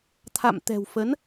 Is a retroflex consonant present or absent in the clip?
absent